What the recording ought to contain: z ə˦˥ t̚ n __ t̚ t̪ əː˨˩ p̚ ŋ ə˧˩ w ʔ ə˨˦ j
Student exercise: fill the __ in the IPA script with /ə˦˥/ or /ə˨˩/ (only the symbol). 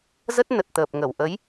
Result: ə˨˩